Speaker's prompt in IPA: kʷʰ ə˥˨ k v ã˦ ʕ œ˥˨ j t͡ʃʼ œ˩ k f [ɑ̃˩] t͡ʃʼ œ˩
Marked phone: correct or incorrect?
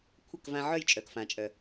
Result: incorrect